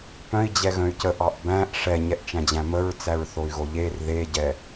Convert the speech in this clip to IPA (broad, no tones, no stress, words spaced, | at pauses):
pœ̃i̯d͡ʑɛ ɣœ̃y̯cəʔɑʔ bæ̃ʔ ʂɛɲɛʔt͡ʃæ̃d͡ʑæ̃ məɹt͡sæɹ θoy̯ɣoʎer ðeɟɛ